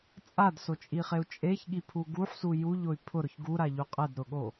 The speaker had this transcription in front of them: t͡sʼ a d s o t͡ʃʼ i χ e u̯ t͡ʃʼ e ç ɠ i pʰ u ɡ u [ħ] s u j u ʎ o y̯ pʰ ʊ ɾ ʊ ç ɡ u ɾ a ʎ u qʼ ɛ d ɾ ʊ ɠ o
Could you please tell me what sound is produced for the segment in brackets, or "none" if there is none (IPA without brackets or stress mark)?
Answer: ħ